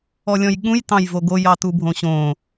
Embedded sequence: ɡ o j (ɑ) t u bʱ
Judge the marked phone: correct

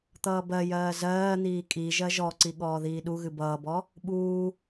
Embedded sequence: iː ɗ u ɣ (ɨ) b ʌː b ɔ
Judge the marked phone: correct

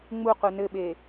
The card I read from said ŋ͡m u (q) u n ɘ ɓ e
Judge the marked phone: correct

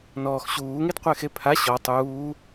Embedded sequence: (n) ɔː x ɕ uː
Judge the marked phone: correct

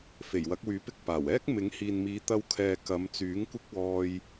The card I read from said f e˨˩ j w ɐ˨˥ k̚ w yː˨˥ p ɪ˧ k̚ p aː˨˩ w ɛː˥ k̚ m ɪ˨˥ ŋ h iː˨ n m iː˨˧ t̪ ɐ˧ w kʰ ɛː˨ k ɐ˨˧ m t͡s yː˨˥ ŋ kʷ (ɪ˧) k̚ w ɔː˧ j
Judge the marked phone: incorrect: ɪ˥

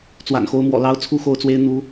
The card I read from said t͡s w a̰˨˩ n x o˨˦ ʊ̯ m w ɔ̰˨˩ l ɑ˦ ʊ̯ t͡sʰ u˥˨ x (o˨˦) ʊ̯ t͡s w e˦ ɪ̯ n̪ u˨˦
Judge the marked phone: incorrect: o˥˨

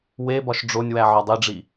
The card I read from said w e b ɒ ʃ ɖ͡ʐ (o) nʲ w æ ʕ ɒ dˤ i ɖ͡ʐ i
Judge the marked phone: correct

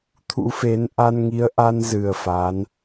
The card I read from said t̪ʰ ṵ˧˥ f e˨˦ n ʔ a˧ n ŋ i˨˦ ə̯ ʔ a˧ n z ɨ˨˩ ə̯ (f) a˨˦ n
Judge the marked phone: correct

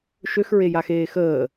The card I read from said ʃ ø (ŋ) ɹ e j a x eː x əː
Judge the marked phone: incorrect: x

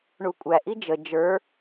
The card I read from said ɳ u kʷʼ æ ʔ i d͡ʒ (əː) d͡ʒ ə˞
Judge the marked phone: incorrect: ə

